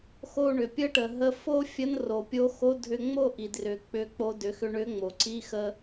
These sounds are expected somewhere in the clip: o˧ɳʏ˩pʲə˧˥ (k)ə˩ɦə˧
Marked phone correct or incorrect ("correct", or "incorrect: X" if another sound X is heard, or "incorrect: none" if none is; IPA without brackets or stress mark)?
incorrect: ʈ